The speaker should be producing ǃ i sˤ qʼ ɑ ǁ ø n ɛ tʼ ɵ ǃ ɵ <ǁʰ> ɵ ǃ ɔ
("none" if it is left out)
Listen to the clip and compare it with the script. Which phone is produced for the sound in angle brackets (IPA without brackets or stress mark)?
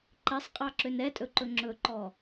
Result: ŋ͡ǁ